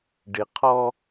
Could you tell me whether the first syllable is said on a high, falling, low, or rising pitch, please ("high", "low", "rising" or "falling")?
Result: low